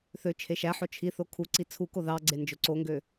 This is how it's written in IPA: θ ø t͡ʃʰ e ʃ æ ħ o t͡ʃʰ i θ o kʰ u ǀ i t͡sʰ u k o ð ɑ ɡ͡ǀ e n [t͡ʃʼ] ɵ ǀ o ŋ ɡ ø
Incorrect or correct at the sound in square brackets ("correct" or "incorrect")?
incorrect